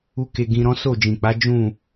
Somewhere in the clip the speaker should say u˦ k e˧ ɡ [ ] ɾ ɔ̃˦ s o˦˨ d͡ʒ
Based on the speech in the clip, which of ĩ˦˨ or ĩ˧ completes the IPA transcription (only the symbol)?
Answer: ĩ˧